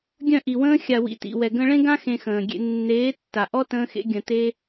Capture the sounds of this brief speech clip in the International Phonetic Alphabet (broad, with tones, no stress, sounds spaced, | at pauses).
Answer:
ɡʲ œ̃˦˨ ʔ i˨ w ə̃ː˦ xʲ a˨ w ḭ˨ t ḭ˨ w ɛ˨ ɡ ə̃˧ ɭ ẽ˦ ɡ ã˦ x ẽ˧ x ə̃ː˨ ɡʲ ḛ˧ nː eː˨˦ tː a˨ ʔ ɔ˦ t ə̃ː˦ x ḛ˦ ɡʲ ə̃˧ t e˦